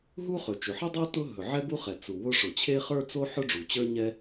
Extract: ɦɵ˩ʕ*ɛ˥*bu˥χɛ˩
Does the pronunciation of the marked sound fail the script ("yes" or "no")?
no